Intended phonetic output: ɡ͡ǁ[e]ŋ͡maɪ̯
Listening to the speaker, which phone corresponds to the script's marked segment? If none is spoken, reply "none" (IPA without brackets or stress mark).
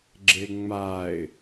e